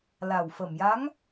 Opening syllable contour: low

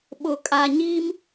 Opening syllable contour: low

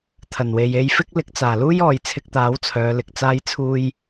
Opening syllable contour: low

